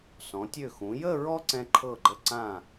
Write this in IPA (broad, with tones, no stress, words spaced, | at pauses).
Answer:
sɔ̃˩˧tʲø˧˩xũ˩˧jə˥˧ ɹɔ˥ǀɛ̃˧ǃʰɤ˧˩ɡ͡ǃə˧˩ ǀã˧˩